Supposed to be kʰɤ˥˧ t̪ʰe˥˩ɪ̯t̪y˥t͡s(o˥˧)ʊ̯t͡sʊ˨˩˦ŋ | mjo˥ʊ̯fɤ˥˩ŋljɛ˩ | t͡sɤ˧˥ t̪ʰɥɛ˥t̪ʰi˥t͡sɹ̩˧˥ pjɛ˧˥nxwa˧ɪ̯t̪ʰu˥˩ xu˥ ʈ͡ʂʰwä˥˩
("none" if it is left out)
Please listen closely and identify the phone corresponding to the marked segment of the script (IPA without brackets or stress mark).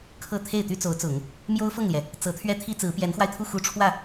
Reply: o˧˥